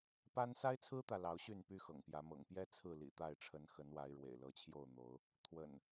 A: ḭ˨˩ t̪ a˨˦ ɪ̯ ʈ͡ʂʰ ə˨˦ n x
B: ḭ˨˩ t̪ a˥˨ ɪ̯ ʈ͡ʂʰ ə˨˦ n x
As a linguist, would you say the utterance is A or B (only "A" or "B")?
B